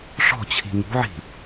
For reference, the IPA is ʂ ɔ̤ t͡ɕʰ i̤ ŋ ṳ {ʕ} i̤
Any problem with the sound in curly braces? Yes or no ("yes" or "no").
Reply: no